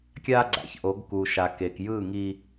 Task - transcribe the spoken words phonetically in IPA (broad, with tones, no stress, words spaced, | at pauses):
kʲa˦ɡ͡ǀa̰˨çʔo˨˦ɡ ku˨ʃa˨ke˨k jɯ˦˨ŋi˦